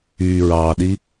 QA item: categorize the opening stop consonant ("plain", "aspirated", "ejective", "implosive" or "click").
implosive